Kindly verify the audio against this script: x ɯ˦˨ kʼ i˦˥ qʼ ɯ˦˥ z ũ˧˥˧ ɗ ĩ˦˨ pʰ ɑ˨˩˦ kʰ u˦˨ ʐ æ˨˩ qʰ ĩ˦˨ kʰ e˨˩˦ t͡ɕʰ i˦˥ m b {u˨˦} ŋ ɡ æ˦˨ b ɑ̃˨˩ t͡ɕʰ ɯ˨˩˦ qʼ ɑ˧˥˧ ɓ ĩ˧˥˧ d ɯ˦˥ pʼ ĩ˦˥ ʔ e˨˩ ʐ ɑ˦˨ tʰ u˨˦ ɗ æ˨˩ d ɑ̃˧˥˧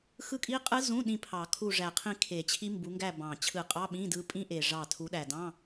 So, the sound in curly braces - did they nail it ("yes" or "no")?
yes